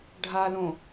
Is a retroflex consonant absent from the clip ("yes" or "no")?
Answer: no